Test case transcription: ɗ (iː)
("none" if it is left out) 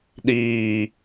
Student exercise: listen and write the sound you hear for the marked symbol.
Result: iː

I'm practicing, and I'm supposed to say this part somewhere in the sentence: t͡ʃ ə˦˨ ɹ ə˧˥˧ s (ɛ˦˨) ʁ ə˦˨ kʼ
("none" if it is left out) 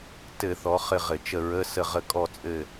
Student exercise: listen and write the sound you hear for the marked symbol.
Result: ə˦˨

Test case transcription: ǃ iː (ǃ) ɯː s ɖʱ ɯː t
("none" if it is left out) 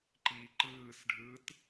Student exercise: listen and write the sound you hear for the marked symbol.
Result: ǃ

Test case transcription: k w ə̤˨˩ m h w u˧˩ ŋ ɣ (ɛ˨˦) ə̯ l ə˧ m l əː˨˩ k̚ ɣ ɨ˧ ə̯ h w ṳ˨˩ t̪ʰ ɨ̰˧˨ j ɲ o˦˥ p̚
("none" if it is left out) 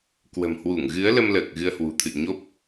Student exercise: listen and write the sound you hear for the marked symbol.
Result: ɨ˨˦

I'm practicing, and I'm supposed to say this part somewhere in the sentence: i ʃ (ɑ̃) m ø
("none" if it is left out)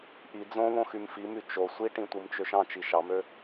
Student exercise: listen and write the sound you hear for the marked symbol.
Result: ɑ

